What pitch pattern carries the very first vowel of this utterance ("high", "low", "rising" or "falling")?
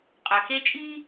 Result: low